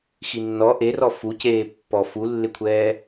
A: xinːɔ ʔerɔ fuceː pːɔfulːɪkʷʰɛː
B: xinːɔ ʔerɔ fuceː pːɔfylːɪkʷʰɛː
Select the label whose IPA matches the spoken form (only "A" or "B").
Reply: A